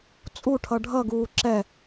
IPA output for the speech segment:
t͡sʼ u ʈʰ ʌ ɖʱ ʌ ɡ uː ǁ ɛ

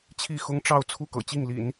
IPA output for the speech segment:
t͡ɕʰ i˥˩ x ʊ˥ ŋ ʈ͡ʂ ɑ˥˧ ʊ̯ t͡sʰ u˥˩ k ɤ̰˨˩ t͡ɕ i˥˩ ŋ l ḭ˨˩˦ n

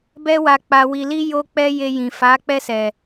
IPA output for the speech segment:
b ɛ˦ w a˧ k͡p a˧ w i˧ l i˦ j o˧ k͡p ɛ˧ j e˧ j ĩ˨ f a˨˦ k͡p ɛ˧ s ɛ˨

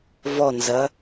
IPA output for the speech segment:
v ɔ n z ɐ

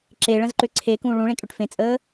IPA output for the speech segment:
ǁ e ɭ ə̃ z ǃ ʏ ǀʰ e k ũ ɭ ũ ɭ ẽ kʼ ʏ ʈ f ẽ t͡sʼ əː

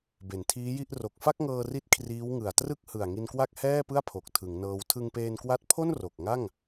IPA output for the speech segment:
b e˩˦ n tʰ iː˦˥ j i˥˩ ʔ r o˨˩ k̚ f a˥˩ k̚ ŋ ɤː˧ r i˦˥ t̚ kʰ r iː˦˥ w ŋ ɯ˨˩ a̯ t r ɯ˥˩ k̚ h ɯ˨˩ a̯ ŋ i˧ n k w a˥˩ k̚ h ɛː˥˩ p ɯ˥˩ a̯ pʰ o˨˩ k̚ tʰ ɯ˩˦ ŋ n ɤː˧ w tʰ ɯ˧ ŋ p eː˧ n k w a˦˥ t̚ pʰ o˥˩ n r o˨˩ k̚ ŋ a˥˩ ŋ

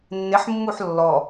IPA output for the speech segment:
nː ɪ ħ mː u ħ lː ɔ

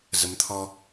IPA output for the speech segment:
z ə˨˦ m t̪ʰ ɔ˧

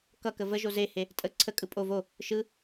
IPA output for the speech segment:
k ʌ k ə v ə ʒ o z e h e | tʼ ə ǀʰ ə kʼ ɯ pʼ o v o | ʃ ɯ

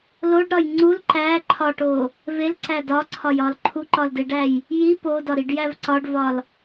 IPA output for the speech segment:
l o ɖ ɾ ɒ j ŋ͡ǀ u l ǃ æ ǃʰ ɒ ʈ o | v e l ǀ æ d ɒ ǀʰ ɒ j ɒ l ǃʰ u ǃ ɒ l d e ɖ æ j | j i p o d ɒ ɾ i ɖ j æ v ǀ ɒ ɖ v ɒ l

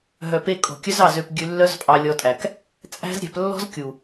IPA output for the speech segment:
ɦ œ˨ p e˧ kʼ o̤˨ kʲ œ˦ z ɑ˦˨ z ø˧ p ɡʲ ʉ˧ lː œ˦ z pʼ ɑ˧ lʲ ɔ˧ tʼ æ˨ k | t͡sʼ æ̤˦ z ɾʲ æ̤˧ p lː ɔ̤˦ z kʲ u˨

